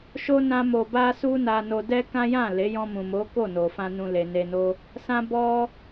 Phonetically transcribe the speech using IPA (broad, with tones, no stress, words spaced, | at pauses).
ʃo˦ nã˦mo˧ba˦ su˦na˧ no˧dɛ˦kã˦ jã˦˨le˨˦ jɔ̃˧mũ˨mo˨˦ ko˦˨no˨fã˧ nũ˧le˨ne˧no˦ | sã˦bɔ˦